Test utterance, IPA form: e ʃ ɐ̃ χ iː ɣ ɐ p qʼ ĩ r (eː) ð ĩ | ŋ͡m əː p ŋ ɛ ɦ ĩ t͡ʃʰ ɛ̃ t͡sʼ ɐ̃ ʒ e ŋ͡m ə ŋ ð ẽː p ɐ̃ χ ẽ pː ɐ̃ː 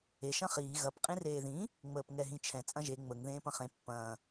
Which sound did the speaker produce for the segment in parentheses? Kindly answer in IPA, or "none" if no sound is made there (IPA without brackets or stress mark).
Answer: eː